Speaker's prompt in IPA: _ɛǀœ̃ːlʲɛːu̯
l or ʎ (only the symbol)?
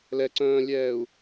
l